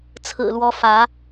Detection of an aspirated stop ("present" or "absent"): present